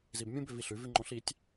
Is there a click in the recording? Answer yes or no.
yes